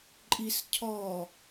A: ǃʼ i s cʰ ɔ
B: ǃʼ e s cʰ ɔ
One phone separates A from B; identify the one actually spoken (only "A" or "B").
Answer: A